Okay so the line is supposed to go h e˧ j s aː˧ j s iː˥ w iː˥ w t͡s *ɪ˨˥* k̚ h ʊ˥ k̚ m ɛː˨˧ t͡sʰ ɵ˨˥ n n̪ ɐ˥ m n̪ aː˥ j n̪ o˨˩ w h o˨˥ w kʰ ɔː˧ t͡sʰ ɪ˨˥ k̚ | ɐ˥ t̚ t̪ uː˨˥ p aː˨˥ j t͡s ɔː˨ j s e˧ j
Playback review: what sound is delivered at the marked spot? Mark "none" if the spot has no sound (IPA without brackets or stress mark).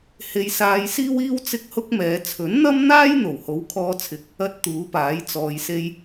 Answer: ɪ˥